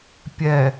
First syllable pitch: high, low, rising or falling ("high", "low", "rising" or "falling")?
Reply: low